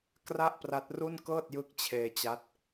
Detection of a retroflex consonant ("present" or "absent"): absent